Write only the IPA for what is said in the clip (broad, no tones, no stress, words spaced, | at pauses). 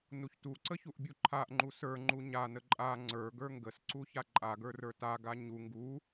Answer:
nuçtuǀə çuʔbʲuǃʰaʔŋ͡ǃu sə˞ŋ͡ǃu ɲanə ǃʼa ŋ͡ǀə˞ ɡə˞ŋɡəsǀu çaǃʼaɡə˞ rə˞taɡa ɲu ŋɡu